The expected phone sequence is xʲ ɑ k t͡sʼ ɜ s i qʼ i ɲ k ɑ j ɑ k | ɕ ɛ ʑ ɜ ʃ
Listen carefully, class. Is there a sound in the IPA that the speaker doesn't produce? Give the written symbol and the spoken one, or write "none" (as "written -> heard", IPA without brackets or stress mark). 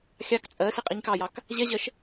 ɕ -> ʑ